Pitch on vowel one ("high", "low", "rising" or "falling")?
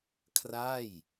falling